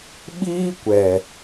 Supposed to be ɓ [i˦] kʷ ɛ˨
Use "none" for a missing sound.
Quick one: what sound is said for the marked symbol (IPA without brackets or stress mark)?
iː˦